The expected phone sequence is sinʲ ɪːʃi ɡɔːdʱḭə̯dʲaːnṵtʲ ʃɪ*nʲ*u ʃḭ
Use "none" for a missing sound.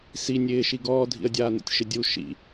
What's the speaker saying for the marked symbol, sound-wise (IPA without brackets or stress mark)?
dʲ